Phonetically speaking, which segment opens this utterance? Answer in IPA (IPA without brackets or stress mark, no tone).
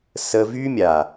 s